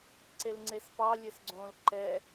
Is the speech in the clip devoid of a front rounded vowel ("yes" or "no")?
yes